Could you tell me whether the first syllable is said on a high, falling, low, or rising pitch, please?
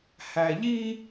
low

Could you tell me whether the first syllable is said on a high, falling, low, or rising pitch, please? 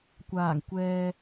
low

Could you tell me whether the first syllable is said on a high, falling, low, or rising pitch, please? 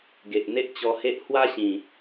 low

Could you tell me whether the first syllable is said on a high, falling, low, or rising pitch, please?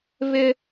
high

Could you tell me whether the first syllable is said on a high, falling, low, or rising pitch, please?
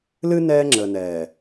high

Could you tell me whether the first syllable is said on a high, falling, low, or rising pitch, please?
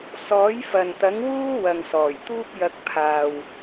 rising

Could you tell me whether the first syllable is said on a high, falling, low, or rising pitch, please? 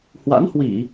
rising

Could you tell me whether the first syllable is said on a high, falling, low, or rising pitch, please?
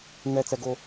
low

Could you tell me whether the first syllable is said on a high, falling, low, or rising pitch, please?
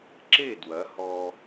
falling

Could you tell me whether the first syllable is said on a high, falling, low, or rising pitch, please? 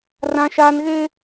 high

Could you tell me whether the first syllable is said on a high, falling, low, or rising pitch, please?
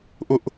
high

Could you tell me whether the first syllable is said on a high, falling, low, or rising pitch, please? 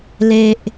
low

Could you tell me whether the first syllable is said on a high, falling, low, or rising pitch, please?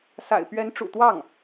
low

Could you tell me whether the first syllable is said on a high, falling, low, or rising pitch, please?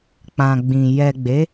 low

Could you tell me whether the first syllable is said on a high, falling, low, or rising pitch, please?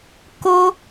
high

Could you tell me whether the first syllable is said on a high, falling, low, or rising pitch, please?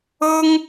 high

